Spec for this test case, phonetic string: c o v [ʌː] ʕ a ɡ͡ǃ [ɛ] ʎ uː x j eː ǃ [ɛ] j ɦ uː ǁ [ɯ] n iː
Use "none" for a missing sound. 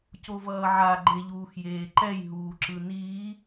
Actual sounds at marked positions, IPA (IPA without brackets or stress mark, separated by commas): ʌː, e, ɛ, ɯ